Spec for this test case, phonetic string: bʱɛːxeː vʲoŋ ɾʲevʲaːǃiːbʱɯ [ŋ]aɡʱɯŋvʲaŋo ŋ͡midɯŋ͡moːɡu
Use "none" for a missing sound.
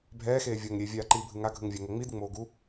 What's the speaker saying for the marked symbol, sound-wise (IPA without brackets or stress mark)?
ŋ